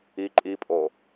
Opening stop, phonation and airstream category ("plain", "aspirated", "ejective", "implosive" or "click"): click